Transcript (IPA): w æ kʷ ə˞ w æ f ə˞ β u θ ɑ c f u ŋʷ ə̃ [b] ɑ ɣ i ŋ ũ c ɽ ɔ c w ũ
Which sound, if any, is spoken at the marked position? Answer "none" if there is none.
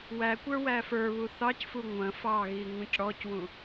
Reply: f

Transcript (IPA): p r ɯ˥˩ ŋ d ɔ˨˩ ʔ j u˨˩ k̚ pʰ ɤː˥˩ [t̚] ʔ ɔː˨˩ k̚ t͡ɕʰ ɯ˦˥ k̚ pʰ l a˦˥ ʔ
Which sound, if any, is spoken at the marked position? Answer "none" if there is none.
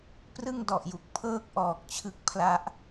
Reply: k̚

